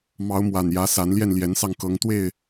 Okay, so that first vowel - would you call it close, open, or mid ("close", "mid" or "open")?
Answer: open